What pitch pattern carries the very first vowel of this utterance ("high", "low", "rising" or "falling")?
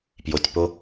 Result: low